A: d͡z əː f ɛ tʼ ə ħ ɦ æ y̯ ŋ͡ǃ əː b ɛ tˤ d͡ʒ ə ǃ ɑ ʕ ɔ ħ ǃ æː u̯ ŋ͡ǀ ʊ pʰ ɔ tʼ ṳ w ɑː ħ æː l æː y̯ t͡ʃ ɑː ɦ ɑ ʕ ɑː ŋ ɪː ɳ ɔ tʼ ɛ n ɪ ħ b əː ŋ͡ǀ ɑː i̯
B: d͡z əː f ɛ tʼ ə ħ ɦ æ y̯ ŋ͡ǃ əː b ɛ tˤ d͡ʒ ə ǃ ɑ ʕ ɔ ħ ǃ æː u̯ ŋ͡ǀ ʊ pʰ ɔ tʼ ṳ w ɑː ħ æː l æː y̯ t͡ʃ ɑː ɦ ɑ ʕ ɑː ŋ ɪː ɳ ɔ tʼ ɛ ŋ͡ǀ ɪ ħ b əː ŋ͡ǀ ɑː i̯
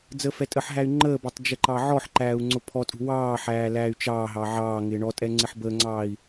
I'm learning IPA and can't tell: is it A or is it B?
B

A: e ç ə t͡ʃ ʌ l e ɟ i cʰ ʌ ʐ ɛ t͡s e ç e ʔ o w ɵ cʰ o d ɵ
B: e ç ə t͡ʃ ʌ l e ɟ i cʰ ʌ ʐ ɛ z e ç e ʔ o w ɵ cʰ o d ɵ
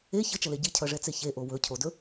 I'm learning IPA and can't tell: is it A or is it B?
A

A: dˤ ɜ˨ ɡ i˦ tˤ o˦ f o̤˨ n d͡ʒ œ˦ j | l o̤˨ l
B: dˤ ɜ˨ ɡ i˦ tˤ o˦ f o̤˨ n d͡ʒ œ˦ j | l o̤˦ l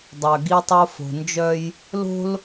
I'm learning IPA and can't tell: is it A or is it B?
B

